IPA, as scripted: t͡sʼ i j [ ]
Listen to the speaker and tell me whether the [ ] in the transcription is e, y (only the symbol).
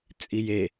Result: e